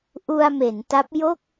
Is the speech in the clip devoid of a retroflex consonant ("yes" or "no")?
yes